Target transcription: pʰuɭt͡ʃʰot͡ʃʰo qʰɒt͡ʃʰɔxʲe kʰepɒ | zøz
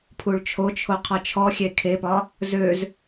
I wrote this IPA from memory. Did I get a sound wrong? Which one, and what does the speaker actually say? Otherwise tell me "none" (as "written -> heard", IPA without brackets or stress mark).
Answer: none